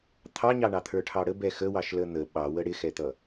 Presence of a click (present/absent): absent